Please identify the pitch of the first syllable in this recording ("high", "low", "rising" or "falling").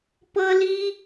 high